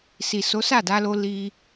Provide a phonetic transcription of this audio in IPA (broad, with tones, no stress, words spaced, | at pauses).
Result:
si˨so˨˦ sa˦˨da˧lo˧ li˧